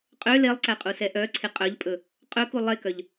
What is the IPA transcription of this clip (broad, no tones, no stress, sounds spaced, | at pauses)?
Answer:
qʼ ø l e lˠ ǀ æ qʼ u s ɛ ʔ œ ǀʰ e qʼ œ ʎ pʼ ɵ | qʼ ɵ k u lˠ e k œ ʎ